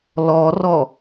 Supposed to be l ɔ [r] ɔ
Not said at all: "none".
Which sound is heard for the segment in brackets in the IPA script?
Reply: r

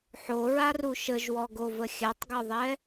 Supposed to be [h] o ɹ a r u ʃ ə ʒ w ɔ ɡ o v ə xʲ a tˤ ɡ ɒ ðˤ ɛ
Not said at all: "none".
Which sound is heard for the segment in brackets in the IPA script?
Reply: ħ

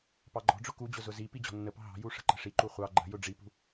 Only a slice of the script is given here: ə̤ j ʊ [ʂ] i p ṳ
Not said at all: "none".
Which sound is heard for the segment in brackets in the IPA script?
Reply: ɖ͡ʐ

